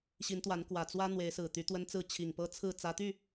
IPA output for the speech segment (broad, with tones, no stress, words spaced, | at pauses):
ɕi˨˦nt̪wa˨˦n kwä˨˩t͡swä˦ n̪we˨˦ɪ̯sɹ̩˨˩t̪y˨˦ t̪wə˦nt͡sɹ̩˥˨ t͡ɕʰi˨˩ŋpɤ˦t͡sʰɹ̩˥˨ t͡sä˨˦t̪y˥˨